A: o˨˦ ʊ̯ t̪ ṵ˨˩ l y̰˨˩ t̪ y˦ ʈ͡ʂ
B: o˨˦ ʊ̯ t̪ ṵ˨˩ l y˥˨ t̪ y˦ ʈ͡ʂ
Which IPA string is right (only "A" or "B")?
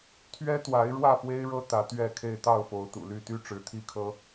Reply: B